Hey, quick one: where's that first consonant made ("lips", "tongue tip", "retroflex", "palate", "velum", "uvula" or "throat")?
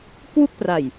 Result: velum